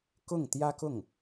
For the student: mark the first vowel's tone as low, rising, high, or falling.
falling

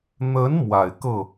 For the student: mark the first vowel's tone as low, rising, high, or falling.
rising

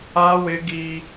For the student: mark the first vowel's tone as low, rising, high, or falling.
high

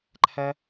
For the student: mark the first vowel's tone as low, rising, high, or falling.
high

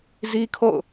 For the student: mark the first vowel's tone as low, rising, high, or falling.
high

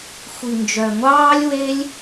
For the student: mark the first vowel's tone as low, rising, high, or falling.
low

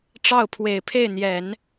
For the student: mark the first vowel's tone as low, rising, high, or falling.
falling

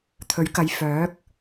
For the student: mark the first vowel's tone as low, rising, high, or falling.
rising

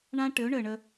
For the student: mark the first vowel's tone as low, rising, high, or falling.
high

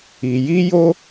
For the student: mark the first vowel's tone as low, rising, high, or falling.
low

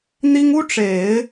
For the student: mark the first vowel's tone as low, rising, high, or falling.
high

